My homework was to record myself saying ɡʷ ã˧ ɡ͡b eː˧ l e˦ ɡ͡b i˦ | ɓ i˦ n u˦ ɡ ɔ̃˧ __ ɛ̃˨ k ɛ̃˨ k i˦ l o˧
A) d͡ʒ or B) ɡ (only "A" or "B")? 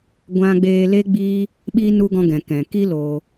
B